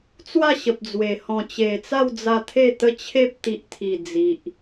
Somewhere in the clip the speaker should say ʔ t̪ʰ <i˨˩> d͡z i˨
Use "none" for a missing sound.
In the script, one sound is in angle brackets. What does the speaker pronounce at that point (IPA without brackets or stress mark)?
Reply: i˨˩